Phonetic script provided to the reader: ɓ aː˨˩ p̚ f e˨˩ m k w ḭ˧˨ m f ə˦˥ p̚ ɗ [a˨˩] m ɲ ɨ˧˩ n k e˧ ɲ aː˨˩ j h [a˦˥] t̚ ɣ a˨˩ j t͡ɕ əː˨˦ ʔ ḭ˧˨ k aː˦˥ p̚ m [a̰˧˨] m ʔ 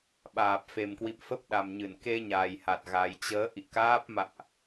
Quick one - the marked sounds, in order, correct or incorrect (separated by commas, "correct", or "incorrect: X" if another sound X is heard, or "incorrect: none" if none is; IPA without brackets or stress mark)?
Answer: correct, incorrect: a˨˩, correct